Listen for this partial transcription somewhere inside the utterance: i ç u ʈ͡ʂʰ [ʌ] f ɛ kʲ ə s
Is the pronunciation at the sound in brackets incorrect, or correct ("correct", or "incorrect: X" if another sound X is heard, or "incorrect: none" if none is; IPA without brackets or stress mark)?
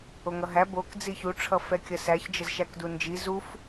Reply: correct